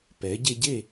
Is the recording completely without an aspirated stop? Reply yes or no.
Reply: yes